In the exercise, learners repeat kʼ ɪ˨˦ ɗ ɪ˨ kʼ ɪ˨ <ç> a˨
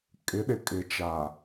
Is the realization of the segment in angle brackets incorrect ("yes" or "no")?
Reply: yes